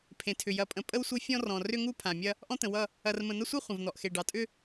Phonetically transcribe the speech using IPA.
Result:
pʰ ẽ˨ tʰ ʏ˨ j ɐ˨ pʼ ə̃˨ pʼ ə˦ w sʷ e˦ fʲ ɔ̃˦ r ɔ̃˨ r ʏ˦ ŋ u˦ pʰ ã˨ mʲ ɐ˦ | ʔ ɔ̃˦ t̪ ə̃˨ w ʌ˦˨ | ɐ˨ r m ə̃˨ n̪ ɐ˦ sʷ ʌ˦ χʷ ə̃˨ v n̪ ɔ˨ ʔ x e˨ ɖ ɑ˨ tʼ ʏ˦

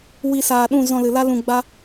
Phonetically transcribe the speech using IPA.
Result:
w i˧ s aː˨ ɗ ũ˦˨ z ɔ̃˧ l ɨ˨ l a˦ l ũ˧ ɡ͡b a˦

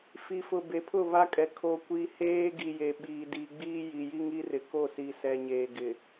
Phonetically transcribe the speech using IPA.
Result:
f i˨ f ʊ˨ b e˨˦ pʰ ʊ˦˨ β a˦ kʼ ɛ˨ kʰ o˨ kʷ i˦ h eː˦ ɡ i˨ j e˨ ɓ iː˨ d i˨ ɡ͡b iː˦ j i˨ j i˦ ŋ i˦ r ɪ˨ k o˦˨ s i˨ s ɛ˨ ɲ eː˨ ɡ ɪ˨

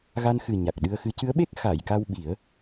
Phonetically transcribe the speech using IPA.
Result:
ɣ a˧ n x ɨ˨˩ ɲ a˨˩ k̚ ɗ ɨ˧ ə̯ x ɨ˧˥ c ɨ˧˥ ə̯ ɓ e˦˥ k̚ x a˨˩˨ j k a˧ w ɓ i˨˩˦ ə̯

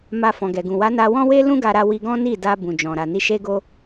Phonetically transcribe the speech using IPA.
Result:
m a˧ f ɔ̃˨ ɡ ɛ˨ ɡ ũ˨ w a˨˦ n a˧ w ɔ̃˦ w e˦ l ũ˦ ɡ a˧ ɾ a˧ w i˧ ɡ ɔ̃˦ n i˦˨ d a˧ b ũ˨ d͡ʒ ɔ̃˨ ɾ a˨ n i˧ ʃ e˦ ɡ o˦

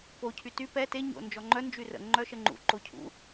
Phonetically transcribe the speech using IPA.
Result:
p o cʰ y t y p ɛ t e ɲ o̰ n d͡ʒ ɔ ŋ͡ǃ œ n d͡ʒ y r ə̰ ŋ͡ǃ œ ʃ ə ŋ͡ǃ ṵ ǃ o cʰ ṵ

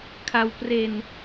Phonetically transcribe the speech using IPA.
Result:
kʰ a˧ w p r e˧ n

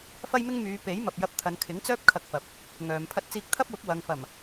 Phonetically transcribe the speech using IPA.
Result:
f ɐ˥ j m ɪ˥ ŋ m yː˨˧ p e˨˥ j m ɐ˨ p̚ j ɐ˧ p̚ t̪ʰ ɐ˨ n kʰ ɪ˨˥ ŋ t͡s œː˥ p̚ kʰ ɐ˧ k̚ f ɐ˨ p̚ | ŋ œː˨ m pʰ ɐ˧ t̚ t͡s iː˧ k̚ t̪ʰ ɐ˥ p̚ w ʊ˨˥ k̚ w ɐ˨ ŋ f ɐ˨˩ m

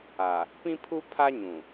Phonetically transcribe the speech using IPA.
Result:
a˨ | p ĩ˦ pʰ u˦ pʰ a˦ ɲ ũ˨

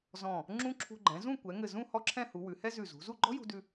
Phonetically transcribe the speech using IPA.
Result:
z ɔ̃˧˩ | ŋ͡ǁ ũ˥ ǁʰ ṳ˧ ɡ͡ǃ ɛ̃˩˧ z ũ˥˧ kʷ ɛ˩˧ ŋ ɘ˧˩ z ũ˥˧ h ɔ˥ ǁʰ ɛ̃˥˧ h u˩˧ w ʉ˩˧ h ɛ˥ z ʉ˧˩ z ṳ˩˧ z u˥˧ ɡ͡ǃ ɔ̤˥ j ṳ˧ d ʉ˧

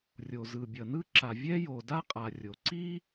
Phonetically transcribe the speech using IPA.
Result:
rʲ o˩ z ɯ˩ bʲ ʌ˩ n ɯ˥ ǁ a˩ vʲ ɛ˥ j o˩ d a˥ qʼ a˩ rʲ o˩ ǀ i˥

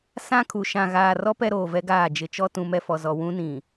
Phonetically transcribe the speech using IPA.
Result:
s ã˦ kʰ u˨ ʃ ã˨ ɣ aː˨ r ɔ˦ p ɛ˦ ɾ oː˨ v ɛ˦ ɡ aː˦˨ d͡ʒ ɪ˨ t͡ʃ ɔ˦ t ũ˨˦ m ɛ˨ f ɔ˨ z ɔ˨ w ũ˦ n ĩ˨

